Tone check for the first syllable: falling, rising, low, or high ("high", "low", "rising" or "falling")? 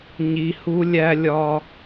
low